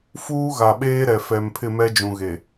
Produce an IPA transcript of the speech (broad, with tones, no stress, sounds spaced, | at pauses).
f uː˦ ɣ a˨ ɓ eː˦ ɾ ɛ˨ f ɛ˨ m pʰ ɪ˦˨ m ɛ˦ d͡ʒ ũ˨ ɣ e˨